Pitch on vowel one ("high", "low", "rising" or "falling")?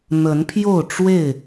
rising